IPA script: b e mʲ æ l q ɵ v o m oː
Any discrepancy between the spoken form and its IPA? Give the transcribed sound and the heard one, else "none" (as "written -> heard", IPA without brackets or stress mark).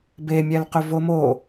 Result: none